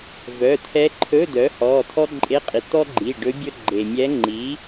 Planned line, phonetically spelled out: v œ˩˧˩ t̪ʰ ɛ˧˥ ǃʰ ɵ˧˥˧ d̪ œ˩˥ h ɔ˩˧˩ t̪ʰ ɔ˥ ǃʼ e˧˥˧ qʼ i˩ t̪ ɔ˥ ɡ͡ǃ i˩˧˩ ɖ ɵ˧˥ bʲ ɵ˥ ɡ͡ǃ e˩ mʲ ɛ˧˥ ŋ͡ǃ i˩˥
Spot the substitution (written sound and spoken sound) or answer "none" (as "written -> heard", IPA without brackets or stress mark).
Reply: none